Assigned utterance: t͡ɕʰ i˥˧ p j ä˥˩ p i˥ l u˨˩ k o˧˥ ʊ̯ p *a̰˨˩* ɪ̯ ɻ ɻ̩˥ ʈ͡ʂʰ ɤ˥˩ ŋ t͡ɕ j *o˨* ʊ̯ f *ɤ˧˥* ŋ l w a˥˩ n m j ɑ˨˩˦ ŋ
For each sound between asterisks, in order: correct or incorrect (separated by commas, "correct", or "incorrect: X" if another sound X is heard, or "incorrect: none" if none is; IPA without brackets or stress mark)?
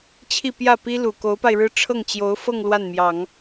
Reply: incorrect: a˧, incorrect: o˧˥, incorrect: ɤ˥˧